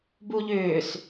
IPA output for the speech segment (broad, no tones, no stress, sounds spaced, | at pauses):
b u ʎ ʏː s